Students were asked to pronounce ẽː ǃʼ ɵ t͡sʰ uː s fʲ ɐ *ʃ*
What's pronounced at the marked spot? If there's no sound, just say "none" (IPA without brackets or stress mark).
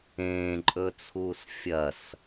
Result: s